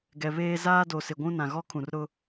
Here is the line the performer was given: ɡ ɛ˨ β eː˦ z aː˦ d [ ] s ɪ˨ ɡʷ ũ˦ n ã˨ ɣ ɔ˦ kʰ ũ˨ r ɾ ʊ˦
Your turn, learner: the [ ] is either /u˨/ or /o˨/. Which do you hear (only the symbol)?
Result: o˨